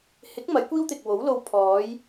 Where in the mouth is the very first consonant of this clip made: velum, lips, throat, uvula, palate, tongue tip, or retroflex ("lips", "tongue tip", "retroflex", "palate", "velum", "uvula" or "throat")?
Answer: throat